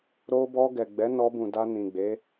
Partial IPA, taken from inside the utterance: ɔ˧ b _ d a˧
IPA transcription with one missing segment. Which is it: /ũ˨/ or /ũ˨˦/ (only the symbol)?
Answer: ũ˨